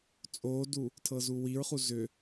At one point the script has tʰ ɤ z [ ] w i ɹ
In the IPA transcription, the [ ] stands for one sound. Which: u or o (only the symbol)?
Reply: u